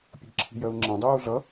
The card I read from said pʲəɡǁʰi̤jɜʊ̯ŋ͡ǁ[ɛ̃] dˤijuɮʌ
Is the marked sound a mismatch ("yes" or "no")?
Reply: no